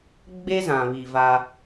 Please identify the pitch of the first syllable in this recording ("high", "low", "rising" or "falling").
high